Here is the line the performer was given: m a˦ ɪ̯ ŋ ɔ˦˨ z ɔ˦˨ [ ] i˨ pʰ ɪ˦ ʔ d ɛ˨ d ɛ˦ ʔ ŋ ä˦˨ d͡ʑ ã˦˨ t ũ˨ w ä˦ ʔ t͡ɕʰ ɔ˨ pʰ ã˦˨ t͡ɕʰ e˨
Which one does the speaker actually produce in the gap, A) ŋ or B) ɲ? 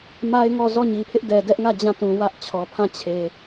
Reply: B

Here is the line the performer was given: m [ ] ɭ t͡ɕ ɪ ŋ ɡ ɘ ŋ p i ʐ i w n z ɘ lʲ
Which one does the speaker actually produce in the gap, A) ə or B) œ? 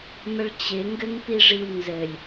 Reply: A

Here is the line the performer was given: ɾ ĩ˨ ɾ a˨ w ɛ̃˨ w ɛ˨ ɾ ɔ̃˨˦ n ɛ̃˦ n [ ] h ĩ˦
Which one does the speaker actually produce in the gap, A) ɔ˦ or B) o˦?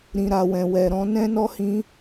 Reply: A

